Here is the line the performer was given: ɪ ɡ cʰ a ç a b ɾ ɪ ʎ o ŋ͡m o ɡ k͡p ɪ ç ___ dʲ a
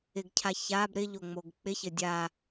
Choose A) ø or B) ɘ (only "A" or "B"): B